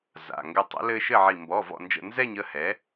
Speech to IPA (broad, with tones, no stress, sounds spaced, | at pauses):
z a̰˩˧˩ ŋ ɡ ɘ˧˩ tˤ ə̰˩˥ l ɘː˦ ʃ ɘ˥˨ ʕ i˧˩ m b ɔ˩˧˩ v ɔ̰˧˩ n d͡ʒ ə̰˧˩ n z ɛ˥˨ ɲ ə˥˨ h ɛ˩˥